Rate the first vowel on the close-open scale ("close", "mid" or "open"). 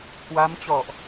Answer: open